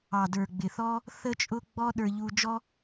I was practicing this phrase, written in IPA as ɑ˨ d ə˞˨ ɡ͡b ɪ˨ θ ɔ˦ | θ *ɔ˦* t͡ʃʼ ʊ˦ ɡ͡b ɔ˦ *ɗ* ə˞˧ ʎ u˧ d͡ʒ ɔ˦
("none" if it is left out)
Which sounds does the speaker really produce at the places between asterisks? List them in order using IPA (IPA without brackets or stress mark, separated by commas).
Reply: ə˦, ɗ